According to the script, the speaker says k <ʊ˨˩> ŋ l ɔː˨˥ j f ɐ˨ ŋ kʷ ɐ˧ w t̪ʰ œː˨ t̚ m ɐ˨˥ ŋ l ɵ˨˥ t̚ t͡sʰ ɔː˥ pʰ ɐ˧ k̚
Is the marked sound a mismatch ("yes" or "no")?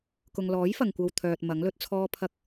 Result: yes